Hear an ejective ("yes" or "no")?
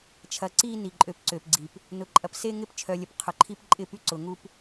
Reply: yes